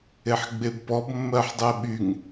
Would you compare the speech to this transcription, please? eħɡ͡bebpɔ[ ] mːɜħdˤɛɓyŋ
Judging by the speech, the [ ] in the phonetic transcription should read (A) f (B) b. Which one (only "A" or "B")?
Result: B